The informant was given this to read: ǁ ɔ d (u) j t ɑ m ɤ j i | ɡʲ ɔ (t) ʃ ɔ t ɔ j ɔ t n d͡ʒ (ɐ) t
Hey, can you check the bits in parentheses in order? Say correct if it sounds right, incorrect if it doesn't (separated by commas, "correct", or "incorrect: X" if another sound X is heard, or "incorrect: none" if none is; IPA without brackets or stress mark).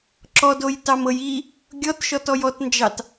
incorrect: o, correct, incorrect: ɑ